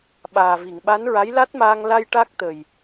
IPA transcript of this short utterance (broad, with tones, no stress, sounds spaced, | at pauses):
ɓ aː˨˩ v i˨˩˨ ŋ ɓ a˧˥ n ɹ a˧˥ j l a˦˥ t̚ m aː˧ ŋ l a˧ j ʈ a˦˥ k̚ t̪ ə˨˩ j